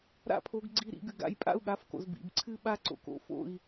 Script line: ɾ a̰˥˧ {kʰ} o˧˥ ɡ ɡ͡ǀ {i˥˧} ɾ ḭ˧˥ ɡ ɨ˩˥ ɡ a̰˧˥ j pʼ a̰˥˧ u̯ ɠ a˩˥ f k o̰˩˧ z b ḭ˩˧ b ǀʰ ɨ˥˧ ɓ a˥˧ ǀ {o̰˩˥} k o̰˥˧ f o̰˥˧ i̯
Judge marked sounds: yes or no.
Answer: no, yes, no

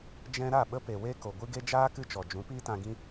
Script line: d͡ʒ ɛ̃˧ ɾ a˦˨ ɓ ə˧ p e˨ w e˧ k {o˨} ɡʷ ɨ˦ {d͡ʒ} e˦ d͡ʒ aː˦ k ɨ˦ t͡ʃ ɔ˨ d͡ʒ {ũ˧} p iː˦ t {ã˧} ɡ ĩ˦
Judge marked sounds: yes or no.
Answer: yes, no, no, yes

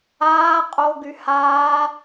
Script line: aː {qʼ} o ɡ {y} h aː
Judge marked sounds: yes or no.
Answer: yes, yes

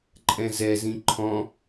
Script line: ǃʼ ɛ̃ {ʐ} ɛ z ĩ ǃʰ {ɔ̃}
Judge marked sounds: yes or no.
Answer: no, yes

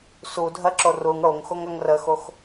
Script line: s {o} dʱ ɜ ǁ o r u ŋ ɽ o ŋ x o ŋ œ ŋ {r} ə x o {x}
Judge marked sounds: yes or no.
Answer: no, yes, yes

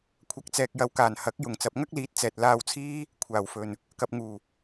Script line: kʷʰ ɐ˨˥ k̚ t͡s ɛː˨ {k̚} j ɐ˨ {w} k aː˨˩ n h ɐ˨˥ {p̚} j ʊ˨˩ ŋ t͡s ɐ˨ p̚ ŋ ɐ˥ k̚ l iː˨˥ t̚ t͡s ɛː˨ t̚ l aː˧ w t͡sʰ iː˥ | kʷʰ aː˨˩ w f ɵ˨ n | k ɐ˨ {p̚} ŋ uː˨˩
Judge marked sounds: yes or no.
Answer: yes, yes, no, yes

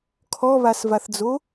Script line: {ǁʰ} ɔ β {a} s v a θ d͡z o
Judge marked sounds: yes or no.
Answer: no, yes

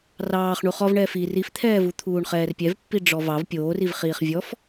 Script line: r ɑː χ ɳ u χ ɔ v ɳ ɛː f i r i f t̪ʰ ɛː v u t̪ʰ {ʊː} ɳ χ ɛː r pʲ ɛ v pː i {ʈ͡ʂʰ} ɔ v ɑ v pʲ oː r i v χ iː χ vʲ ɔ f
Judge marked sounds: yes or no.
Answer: no, no

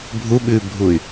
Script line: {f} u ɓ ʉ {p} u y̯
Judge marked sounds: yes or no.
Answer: no, no

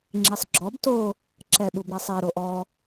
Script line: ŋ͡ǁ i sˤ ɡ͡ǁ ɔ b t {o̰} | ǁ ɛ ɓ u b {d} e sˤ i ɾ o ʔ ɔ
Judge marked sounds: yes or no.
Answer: no, no

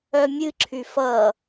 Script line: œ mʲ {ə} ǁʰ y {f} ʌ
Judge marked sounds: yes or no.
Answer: no, yes

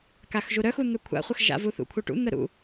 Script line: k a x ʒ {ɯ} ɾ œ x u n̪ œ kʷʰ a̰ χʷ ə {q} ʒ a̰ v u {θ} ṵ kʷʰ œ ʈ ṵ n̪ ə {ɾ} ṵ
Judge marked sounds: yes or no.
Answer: no, no, yes, yes

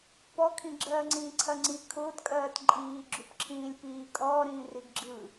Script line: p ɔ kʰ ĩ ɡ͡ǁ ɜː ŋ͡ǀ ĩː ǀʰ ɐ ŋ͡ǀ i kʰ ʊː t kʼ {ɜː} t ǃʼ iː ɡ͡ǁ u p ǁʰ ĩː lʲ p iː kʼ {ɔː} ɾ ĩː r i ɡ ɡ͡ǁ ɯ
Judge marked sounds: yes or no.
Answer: yes, yes

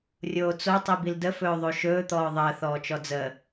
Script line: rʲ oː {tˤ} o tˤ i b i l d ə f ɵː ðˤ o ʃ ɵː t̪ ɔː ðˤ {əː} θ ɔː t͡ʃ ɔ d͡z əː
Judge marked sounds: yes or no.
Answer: no, yes

